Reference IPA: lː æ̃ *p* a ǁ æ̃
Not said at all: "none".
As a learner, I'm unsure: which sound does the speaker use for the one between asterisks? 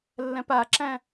p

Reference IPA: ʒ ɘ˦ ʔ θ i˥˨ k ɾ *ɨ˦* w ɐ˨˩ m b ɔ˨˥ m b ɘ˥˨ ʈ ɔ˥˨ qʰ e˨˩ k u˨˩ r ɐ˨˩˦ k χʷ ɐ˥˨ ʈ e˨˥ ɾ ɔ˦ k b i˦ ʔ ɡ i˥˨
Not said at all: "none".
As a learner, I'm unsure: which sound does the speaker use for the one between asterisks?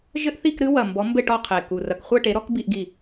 ɨ˦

